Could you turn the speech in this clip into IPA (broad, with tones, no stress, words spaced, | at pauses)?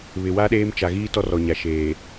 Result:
βɪ˨ wa˦ɗeː˦mt͡ʃa˨ ɣiː˦ tɔ˦rɔ˨ɲa˨ ʃeː˨